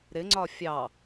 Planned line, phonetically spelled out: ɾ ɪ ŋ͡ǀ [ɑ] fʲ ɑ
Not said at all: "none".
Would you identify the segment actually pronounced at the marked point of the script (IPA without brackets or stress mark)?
ɒ